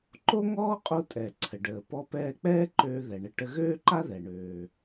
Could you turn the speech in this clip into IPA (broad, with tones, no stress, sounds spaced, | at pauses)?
ǃ o˥ ŋ ɔː˥ qʼ o˧ tʼ ɛ˩ ǀʰ ə˩ ɖ əː˩ p ɔ˧ p ɛː˧ k͡p ɛː˥ ǃ øː˧ ð ɛ˩ ɳ ə˧ ʈ ə˧ ɣ øː˥ ǃ a˥ ð ɛ˩ ɳ øː˩